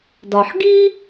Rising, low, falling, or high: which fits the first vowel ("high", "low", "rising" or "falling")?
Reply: low